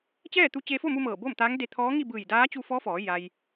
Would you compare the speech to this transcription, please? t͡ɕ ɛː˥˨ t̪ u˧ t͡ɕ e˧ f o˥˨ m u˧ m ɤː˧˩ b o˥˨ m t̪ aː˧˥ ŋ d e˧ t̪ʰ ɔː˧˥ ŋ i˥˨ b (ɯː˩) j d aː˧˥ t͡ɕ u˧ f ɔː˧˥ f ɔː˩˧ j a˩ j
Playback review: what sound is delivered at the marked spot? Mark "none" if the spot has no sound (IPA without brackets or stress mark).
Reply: ɯː˧˩